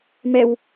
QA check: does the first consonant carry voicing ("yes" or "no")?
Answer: yes